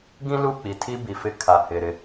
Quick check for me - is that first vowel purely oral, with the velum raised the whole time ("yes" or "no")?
no